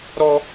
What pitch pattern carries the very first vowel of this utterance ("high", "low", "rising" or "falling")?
high